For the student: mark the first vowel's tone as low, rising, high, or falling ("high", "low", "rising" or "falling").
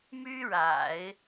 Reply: high